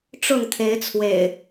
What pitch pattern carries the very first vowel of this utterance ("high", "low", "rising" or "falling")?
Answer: falling